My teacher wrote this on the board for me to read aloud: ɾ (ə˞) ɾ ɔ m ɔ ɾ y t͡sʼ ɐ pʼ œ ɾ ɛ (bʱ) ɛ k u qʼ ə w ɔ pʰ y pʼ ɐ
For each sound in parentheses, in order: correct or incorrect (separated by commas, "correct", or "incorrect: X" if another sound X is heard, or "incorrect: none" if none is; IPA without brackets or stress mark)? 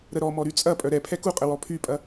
incorrect: ə, incorrect: pʰ